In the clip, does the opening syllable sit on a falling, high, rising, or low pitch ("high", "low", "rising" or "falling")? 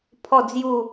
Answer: falling